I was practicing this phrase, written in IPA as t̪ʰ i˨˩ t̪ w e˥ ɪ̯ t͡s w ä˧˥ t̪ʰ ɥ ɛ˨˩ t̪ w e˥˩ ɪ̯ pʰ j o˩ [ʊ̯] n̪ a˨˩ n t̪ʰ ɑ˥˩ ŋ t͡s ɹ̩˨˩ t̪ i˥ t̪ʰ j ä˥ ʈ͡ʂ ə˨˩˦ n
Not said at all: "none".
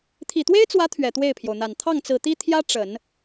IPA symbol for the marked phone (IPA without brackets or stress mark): ʊ̯